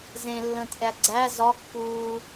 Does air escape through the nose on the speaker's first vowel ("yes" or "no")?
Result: yes